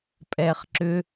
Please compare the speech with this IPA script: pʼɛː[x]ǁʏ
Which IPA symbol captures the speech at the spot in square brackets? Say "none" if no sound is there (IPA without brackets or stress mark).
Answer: χ